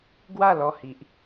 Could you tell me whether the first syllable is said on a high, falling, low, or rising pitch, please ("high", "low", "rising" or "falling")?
falling